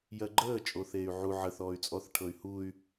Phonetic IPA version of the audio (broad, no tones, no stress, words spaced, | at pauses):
jɜɡ͡ǃəː t͡ʃʼoθeːy̯ʕu ʕə θɔːy̯t͡sʼɔθ ʈʰɤy̯huy̯